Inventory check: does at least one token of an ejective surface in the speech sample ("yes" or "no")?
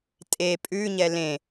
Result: yes